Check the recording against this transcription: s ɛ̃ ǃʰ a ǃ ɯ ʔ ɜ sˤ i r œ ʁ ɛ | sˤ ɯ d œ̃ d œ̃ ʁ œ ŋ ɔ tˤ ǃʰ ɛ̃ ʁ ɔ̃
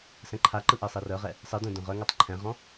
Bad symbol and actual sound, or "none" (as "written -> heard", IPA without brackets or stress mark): none